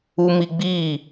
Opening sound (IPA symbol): u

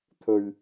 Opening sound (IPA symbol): t̪ʰ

